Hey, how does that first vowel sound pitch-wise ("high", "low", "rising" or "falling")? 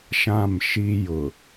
falling